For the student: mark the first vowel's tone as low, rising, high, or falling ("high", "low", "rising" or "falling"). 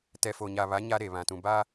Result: low